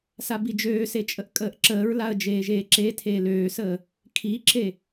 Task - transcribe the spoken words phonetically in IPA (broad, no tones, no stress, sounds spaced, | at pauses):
s a b i d͡ʒ øː s e t͡ʃʼ ə ʔ kʼ əː ʔ ǁ əː ɹ l a ə̯ d͡ʒ eː ʒ eː ǁ e tʰ eː l øː s əː | kʰ i ǁ e